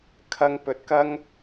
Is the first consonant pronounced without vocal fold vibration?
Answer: yes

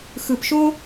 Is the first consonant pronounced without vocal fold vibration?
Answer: yes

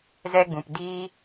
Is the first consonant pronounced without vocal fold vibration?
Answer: no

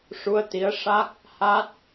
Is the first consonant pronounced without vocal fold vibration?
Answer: yes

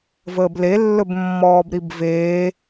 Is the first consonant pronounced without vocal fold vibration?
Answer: no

